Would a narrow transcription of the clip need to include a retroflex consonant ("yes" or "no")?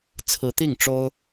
yes